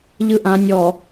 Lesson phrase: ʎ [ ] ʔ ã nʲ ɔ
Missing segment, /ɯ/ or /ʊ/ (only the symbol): ɯ